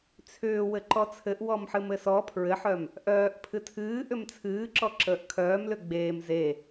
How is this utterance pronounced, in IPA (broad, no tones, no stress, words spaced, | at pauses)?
t͡sʰʏː wɘǃɔt͡sʰɘʔ wɔmħɨmɘsɔ pʰɹɘħœm | ʔœːʔ pʰɨtʰɨː ʔʏmt͡sʰɨːǁɔ ǁəːʔkʰœːmlʏ ɡ͡beːm ze